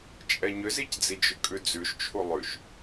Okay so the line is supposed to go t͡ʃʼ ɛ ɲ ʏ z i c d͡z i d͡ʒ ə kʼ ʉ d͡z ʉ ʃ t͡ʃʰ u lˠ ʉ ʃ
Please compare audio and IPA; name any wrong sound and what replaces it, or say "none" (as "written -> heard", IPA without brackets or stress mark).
ə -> ʏ